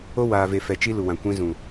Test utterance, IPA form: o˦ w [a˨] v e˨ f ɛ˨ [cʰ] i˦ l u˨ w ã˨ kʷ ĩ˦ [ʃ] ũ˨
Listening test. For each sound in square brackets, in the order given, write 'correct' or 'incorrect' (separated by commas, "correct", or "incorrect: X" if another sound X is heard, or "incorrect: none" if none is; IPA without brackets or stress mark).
incorrect: aː˨, incorrect: t͡ʃ, incorrect: z